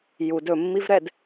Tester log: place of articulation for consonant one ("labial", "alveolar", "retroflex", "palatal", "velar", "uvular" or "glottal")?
palatal